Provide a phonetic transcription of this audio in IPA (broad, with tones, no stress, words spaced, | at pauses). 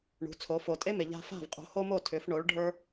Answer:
ɳṳ˩˥t͡sʰo˩˥ fo˩tʼe˥me˩ ʎa̤˧fa̤˥˩v qʼo̤˩˥ho˥mo˥˩ tʰʏ˩˥f ɳo˩˥ɭ ɖʱə˞˥